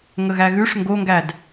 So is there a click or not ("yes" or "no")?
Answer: no